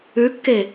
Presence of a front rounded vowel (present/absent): absent